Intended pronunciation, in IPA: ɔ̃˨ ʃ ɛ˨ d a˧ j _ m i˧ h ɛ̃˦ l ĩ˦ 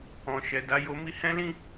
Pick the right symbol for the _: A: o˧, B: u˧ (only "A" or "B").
A